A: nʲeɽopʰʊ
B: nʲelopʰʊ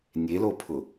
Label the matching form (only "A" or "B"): B